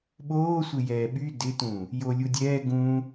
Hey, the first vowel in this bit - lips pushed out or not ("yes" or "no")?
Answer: yes